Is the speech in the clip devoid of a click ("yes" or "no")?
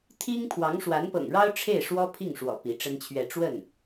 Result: yes